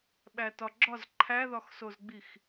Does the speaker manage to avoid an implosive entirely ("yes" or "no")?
no